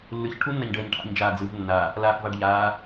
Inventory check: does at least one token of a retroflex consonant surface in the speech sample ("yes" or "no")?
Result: yes